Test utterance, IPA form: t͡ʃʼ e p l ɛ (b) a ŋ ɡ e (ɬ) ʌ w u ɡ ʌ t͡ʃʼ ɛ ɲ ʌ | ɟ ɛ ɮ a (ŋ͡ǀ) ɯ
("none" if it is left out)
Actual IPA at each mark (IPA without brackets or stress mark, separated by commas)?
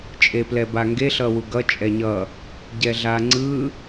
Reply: b, ɬ, ŋ͡ǀ